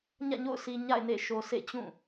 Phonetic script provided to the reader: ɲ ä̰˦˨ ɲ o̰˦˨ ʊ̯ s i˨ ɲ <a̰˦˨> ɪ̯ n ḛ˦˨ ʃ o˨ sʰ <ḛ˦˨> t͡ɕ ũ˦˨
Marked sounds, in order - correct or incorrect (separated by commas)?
correct, correct